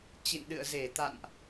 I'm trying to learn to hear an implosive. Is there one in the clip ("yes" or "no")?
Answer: yes